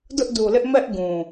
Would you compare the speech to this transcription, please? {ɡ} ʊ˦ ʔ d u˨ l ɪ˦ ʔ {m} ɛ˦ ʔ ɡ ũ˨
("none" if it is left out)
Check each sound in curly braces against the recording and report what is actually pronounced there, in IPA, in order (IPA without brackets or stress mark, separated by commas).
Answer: d, m